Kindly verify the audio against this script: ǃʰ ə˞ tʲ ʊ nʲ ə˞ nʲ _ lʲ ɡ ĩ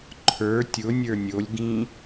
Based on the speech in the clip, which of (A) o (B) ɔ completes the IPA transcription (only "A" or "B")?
A